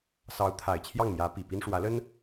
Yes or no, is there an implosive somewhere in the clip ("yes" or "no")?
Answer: no